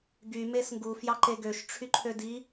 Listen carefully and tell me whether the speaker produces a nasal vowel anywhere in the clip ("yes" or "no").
no